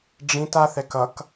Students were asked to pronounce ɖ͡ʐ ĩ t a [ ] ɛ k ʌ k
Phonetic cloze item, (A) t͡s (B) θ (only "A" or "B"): B